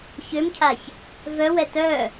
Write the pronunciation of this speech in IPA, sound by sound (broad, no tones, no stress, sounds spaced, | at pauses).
ç ø m cʰ a ç | v œ w ɛ t œ